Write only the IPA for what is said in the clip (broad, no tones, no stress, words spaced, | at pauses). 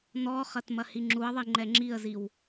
nɔχɐt mɐhiŋ͡ǁuə̯ðˤi ŋ͡ǃɛŋ͡ǁiə̯ziw